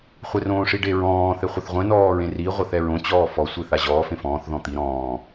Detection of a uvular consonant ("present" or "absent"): present